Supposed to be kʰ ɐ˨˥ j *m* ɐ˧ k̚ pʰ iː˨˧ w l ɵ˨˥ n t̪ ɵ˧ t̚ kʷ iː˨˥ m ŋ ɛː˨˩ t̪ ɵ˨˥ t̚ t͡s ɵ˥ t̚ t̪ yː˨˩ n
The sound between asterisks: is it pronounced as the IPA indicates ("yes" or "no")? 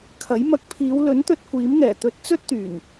yes